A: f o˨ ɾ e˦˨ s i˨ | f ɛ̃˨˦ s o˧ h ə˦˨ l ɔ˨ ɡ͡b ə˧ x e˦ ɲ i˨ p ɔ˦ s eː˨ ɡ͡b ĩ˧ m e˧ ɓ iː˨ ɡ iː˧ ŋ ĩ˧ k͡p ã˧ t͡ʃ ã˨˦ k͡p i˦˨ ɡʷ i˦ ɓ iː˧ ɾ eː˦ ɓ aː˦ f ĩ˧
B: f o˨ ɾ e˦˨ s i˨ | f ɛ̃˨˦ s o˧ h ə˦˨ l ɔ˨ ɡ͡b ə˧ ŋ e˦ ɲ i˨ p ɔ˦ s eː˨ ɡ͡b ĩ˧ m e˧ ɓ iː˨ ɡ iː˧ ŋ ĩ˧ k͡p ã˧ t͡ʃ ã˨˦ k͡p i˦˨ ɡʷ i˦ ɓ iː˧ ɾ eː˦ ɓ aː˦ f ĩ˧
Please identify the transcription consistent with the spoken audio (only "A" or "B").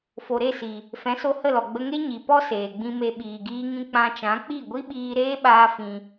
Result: B